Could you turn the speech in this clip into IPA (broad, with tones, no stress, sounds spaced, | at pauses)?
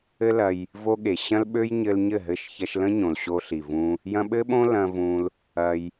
ɘ˦ l ɐ˧ j | v o˧ ɠ e˨ ɕ ɐ̃˦ l ɓ ø˦ j ɲ ɘ˧ l ɲ ɘ˦˨ ɦ ɘ˦˨ ʃ ç ɐ˧ ʃ l ə̃˦ ɲ õ˨ l ɕ o˧ ɬ i˨ v ũ˧ | j ɐ̃˧ ɓ ɘ˦ ɓ õ˦ l ɐ̃˧ v ũ˧ l | ɐ˧ j